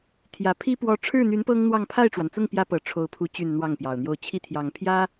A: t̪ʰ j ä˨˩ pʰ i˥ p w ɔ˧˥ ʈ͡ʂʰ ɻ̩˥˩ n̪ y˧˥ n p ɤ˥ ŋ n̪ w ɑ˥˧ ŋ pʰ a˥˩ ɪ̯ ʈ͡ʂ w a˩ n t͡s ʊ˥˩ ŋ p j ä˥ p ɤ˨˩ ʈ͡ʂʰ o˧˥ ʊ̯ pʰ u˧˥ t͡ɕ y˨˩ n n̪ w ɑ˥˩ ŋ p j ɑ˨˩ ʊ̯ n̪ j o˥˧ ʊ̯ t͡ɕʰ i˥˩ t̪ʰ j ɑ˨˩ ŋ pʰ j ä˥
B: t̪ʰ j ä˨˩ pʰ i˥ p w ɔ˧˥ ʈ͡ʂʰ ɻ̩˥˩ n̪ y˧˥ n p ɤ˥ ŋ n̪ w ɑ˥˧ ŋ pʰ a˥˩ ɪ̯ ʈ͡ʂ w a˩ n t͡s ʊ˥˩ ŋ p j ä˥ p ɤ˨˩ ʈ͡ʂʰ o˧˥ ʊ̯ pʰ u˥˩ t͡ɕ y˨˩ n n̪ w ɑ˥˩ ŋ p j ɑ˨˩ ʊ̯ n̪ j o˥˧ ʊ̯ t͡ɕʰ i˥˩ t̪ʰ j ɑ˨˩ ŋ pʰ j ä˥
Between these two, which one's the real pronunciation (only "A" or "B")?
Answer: A